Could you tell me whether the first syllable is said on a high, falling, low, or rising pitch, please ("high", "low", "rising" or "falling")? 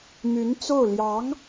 rising